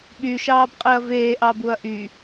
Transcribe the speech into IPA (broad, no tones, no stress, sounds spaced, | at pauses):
ɓ y ʃ ɑː b qʼ i ɐ̯ v eː ʔ ɑ b u ɐ̯ ʔ y